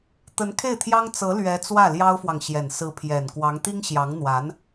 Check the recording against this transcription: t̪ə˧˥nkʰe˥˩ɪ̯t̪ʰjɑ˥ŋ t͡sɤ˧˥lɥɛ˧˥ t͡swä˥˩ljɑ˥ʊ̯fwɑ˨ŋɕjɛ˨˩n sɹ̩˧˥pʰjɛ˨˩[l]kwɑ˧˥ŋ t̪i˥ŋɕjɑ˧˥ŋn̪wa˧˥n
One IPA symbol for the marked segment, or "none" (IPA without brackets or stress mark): n